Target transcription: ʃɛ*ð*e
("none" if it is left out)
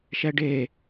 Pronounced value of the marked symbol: ɖ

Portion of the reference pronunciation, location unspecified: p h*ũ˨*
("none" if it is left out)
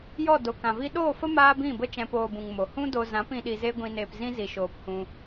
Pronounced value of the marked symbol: ũ˧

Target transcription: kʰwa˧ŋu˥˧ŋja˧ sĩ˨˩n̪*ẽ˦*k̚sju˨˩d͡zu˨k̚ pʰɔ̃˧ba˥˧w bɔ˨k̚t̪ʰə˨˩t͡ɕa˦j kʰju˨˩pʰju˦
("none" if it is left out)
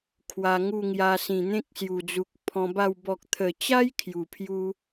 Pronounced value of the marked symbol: ẽ˦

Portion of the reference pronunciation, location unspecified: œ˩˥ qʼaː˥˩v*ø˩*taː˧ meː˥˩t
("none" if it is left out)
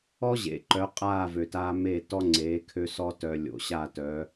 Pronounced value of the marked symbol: ø˩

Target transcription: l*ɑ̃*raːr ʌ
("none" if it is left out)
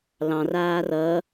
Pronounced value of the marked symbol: ɑ̃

